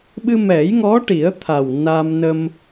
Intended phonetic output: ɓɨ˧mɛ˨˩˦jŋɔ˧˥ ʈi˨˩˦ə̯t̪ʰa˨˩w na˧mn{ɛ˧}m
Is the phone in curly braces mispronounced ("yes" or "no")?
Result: yes